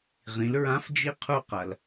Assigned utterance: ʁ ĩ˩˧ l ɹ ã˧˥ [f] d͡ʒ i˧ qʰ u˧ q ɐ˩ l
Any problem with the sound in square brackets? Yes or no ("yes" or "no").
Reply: no